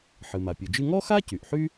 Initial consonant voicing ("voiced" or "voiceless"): voiceless